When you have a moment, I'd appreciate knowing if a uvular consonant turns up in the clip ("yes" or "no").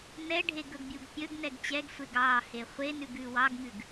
yes